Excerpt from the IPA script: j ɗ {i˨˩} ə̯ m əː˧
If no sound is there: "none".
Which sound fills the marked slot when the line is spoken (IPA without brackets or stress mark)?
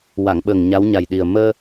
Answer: i˨˩